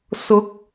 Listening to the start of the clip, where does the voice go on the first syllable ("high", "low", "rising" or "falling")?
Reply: rising